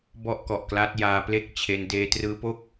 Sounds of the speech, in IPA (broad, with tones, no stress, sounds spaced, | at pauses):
b ɔ˥˩ ʔ k ɔ˨˩ ʔ k l aː˦˥ t̚ j aː˧ p l e˥˩ k̚ t͡ɕʰ e˧ n d eː˧ t r ɯː˦˥ p o˥˩ k̚